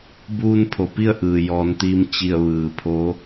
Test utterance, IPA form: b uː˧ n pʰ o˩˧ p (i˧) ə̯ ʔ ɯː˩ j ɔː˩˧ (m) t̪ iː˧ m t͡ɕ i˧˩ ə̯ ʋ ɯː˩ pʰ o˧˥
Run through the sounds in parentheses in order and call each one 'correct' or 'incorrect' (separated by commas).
incorrect, incorrect